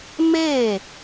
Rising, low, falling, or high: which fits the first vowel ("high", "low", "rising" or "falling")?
falling